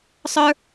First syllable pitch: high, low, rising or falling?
high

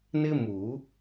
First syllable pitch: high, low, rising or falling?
high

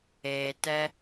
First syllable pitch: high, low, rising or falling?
low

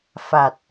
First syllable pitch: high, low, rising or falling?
low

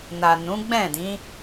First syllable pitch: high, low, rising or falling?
low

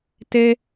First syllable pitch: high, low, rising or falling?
high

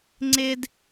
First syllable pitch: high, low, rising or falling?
high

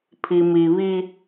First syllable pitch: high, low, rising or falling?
low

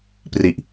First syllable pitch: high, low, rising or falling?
low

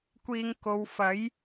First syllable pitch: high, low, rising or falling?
low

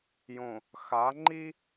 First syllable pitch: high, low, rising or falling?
low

